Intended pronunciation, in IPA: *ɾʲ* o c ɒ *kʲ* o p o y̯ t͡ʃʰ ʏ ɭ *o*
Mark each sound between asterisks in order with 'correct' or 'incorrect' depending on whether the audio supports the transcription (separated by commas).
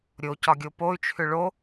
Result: correct, incorrect, correct